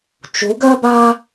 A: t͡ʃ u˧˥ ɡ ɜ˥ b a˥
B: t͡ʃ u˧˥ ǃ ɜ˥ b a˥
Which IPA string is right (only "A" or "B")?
A